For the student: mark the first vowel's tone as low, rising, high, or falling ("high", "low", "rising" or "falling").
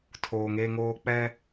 low